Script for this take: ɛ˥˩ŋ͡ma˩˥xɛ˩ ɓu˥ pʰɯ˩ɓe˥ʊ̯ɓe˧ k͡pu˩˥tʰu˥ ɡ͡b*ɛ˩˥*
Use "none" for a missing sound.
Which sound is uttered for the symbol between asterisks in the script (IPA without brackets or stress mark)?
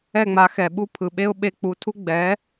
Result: ɛ˩˥